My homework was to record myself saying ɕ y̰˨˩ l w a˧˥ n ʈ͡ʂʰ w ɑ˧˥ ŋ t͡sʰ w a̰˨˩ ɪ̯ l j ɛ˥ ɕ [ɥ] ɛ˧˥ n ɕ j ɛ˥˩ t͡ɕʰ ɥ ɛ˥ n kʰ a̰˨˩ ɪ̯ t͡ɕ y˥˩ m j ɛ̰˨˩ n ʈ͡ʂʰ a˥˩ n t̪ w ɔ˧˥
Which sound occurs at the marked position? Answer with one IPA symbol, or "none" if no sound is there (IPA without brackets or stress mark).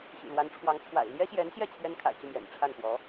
j